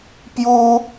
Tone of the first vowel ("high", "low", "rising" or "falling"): high